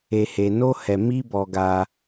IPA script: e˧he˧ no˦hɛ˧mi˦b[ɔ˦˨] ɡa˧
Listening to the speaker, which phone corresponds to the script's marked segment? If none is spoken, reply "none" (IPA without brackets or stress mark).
ɔ˧